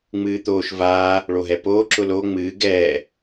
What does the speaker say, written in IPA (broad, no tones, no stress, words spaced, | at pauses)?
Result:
ŋ͡mɨːt̪oːʃ vaː | ɭoɦɛpoː ǁʊlo ŋ͡mɨː ɡɛː